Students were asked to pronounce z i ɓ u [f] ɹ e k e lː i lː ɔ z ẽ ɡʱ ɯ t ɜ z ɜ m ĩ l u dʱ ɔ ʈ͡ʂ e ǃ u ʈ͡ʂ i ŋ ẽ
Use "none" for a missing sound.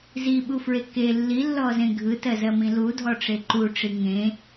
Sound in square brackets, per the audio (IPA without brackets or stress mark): f